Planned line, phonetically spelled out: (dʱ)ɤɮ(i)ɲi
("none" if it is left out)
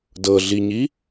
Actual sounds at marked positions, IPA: d, i

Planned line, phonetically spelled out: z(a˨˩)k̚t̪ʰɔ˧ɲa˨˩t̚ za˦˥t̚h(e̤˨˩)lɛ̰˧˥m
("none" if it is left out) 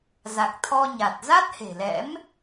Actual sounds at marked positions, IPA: a˨˩, e̤˨˩

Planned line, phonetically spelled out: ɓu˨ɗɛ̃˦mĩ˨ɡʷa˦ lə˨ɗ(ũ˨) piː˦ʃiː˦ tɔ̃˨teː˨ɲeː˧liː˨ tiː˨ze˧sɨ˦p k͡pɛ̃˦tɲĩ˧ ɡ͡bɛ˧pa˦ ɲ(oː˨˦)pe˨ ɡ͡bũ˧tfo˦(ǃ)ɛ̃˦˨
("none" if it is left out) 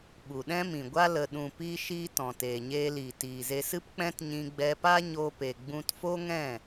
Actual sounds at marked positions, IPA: ũ˨, oː˧, ŋ

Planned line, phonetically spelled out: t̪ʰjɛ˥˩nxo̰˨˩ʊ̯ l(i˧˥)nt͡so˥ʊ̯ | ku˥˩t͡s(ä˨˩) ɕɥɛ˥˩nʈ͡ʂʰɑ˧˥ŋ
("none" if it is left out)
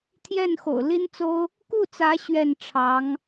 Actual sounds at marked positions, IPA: i˥, ä˧˥

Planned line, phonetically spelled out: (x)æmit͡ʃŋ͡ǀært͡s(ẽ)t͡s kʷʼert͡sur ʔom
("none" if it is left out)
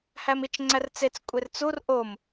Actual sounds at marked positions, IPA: h, e

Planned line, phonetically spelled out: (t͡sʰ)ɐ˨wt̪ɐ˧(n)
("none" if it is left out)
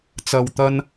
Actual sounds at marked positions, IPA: t͡s, n

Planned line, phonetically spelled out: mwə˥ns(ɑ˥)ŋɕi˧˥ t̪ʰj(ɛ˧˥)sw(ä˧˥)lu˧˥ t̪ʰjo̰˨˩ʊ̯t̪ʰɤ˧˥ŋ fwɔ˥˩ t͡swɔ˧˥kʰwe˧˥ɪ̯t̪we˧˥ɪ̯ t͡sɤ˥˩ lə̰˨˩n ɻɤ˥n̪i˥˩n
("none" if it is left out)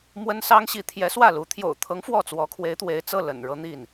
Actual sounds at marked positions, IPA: ɑ˥, ɛ˧˥, ä˥˩

